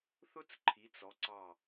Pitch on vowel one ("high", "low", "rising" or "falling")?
high